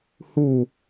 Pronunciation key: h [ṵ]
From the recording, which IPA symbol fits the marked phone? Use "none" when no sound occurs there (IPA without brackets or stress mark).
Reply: u